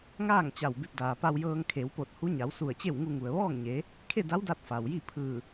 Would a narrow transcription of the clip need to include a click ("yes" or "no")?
no